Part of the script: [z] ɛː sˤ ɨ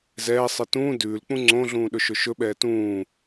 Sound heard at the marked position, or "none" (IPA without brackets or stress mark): z